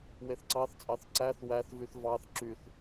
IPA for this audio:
w e θ ǀ ɑ θ t͡sʼ ɑ θ ǀ æ θ w æ θ v y θ v ɑ θ ǁ y θ

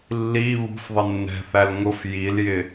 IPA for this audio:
lː i β ṳ f ðˤ ɪ nː ɛ̤ θ æ l ŋ ʊ f j i l j ɪ

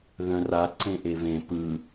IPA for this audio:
ð œ̃ r a ǀ ẽ ʔ e v ẽ p ɯ

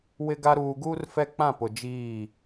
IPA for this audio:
w ɪ˦ ɡ a˦ ɾ uː˦ ɡ uː˦ r f ɛ˦ k͡p ã˦˨ p ʊ˨ d͡ʒ iː˦˨

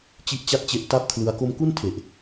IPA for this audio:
t͡ɕ i˥˩ ʔ t͡ɕ a˥˩ t̚ t͡ɕ e˦˥ ʔ t a˥˩ p̚ kʰ l ɯ˧ a̯ k o˧ m k u˥˩ n tʰ e˨˩ ʔ

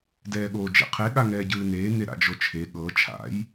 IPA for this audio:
d ɛː ɠ oː d͡ʒ ḛ qʰ e ɠ a ŋ ɛː ɟ ɯː n eː n e ɾ a̰ d͡ʒ o t͡ʃʰ e ɠ ɤ t͡ʃʰ a̰ j

